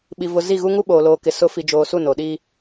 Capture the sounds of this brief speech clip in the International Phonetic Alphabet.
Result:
ɓ i˨ v ʊ˨ z i˦˨ ɣ u˦ ŋ u˦ ɓ oː˨ l oː˨ k ɪ˨ s ʊ˨˦ f i˨ d͡ʒ oː˨ s u˦˨ n o˨ ɗ iː˦

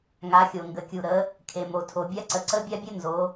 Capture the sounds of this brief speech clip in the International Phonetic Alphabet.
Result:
ŋ a˩˧ xʲ o˩ ŋ ɡ ə˩ kʲ u˩ ɾ ə˩˧ | kʰ e˩ m o˩ tʰ o˩ bʲ a˦˥ ǀ ə˩ ǀ ə˦˥ bʲ a˦˥ bʲ ə˦˥ n z o˩˧

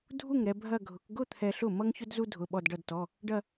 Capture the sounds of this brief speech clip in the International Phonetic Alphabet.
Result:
dʱ u˥˩ ŋ ɾ ɛ˧ bʱ ɐ˥˧ ɡʱ ʊ˨˥ k ɡ ʊ˥˧ t̪ʰ ɛ˧ ɬ ʊ˥˩ m ʌ˥ ŋ ç ʊ˥ d z u˥ dʱ ʊ˧˥˧ ɓ ɔ˥˧ d ɖ ʌ˥˧ d t ɔ˧˥˧ | ɖ ɐ˥˧

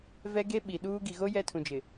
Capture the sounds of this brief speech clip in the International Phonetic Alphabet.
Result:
v ɛ˦ ɡ e˦ ɓ i˨ ɗ uː˦ ɡ i˨ ɣ o˦ j ɛ˦ tʰ ũ˨ d͡ʒ ɪ˨

